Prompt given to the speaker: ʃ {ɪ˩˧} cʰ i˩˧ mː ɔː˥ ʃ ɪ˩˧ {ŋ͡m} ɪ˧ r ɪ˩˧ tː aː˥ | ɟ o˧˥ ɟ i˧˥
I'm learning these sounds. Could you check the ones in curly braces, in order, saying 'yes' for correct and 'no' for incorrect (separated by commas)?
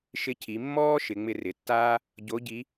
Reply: no, yes